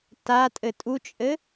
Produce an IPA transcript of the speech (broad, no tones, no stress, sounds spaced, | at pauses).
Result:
t a tʼ ɘ tʼ u t͡ʃʼ ɘ